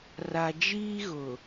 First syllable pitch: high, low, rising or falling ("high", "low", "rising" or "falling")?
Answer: low